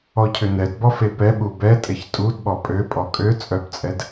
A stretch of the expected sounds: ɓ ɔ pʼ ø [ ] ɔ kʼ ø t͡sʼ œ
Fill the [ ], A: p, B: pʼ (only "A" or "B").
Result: B